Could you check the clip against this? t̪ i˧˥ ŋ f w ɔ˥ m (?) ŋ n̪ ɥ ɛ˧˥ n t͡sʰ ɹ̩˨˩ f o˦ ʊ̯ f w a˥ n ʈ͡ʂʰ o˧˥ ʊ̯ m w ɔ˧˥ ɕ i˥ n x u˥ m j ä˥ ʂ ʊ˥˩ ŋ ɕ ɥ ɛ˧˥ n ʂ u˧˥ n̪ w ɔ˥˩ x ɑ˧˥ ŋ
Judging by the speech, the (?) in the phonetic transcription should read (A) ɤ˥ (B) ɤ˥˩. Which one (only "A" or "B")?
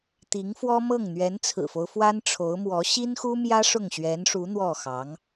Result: B